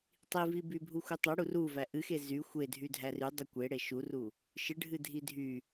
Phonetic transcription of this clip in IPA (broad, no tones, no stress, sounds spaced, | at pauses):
tˤ i v i b y bʱ u xʷ ɨ tˤ ɛ ɽ u r u v æ ʔ ɨ x e z y xʷ e dʱ y dʱ æ r y dˤ u kʷ e ɽ e ʃ u r u | ʃ ɨ ɖʱ ɨ dʱ i dʱ y